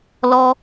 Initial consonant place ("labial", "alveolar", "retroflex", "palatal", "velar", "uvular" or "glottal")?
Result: alveolar